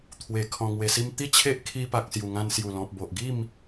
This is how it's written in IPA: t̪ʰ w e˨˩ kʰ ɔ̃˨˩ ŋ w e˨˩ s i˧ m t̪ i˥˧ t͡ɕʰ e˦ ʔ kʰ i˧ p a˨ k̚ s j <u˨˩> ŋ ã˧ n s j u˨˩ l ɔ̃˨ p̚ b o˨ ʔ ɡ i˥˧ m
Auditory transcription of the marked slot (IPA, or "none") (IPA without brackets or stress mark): u˨˩